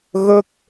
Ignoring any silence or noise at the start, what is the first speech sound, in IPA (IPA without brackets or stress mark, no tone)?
ɣ